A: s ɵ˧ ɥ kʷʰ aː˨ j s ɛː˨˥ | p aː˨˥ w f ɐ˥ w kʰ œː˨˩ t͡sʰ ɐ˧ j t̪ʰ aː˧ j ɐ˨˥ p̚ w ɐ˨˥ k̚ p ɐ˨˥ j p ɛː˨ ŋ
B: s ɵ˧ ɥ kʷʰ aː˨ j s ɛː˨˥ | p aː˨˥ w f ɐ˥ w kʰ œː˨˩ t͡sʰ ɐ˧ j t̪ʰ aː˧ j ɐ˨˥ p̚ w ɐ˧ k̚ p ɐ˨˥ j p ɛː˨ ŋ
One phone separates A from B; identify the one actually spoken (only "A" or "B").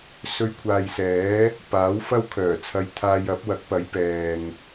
A